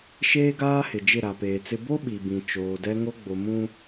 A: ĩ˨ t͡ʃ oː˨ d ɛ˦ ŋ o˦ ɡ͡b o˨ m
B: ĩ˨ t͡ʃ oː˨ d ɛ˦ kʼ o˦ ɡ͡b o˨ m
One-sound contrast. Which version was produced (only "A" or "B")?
A